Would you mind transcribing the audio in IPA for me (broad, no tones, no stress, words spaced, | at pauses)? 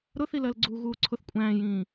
ɾʊθilɜlɡ͡ǀuː ɣuːǀʰʊθ kʷʼæ̃ːjĩː